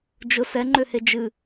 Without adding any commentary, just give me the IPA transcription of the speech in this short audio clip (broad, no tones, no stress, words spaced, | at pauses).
d͡ʒʊ sɛŋ͡ǃøhe d͡ʒɨ